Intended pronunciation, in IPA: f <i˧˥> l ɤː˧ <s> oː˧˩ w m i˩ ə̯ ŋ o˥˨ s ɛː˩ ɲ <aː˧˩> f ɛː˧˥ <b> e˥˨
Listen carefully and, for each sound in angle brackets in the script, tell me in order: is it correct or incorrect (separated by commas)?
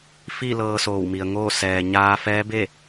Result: incorrect, correct, incorrect, correct